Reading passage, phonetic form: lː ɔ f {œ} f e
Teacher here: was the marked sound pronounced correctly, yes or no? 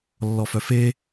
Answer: yes